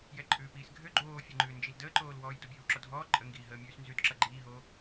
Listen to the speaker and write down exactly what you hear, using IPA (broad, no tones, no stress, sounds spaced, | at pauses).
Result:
j ɛ ǃʼ ʉː p iː s ɡʱ ø ɡ͡ǃ oː fʲ ʌ ŋ͡ǃ ʉː n d͡ʒ i l d əː ǃ oː l w ɔː j d o bʲ ʉː w ǁ ɔ dʱ ɔː ǃʼ ə ŋ ɡ iː ɦ əː mʲ ʉː s n z ʉ d ǁ ʌ ɡ͡ǃ iː ɦ oː